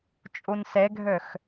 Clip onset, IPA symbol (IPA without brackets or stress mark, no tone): t͡ʃʼ